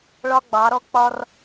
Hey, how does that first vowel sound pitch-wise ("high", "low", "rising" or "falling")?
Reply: high